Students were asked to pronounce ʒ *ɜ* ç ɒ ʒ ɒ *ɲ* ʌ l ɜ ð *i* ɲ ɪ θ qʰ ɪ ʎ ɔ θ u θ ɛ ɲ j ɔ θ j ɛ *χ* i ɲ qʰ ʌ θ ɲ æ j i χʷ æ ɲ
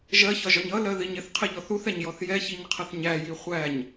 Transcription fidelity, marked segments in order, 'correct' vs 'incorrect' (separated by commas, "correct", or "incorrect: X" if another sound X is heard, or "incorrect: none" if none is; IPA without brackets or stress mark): correct, correct, correct, incorrect: ç